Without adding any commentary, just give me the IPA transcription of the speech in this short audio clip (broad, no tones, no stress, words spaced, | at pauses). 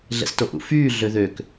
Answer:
ɮɛ̰stoʔṵfyː ɮøðøk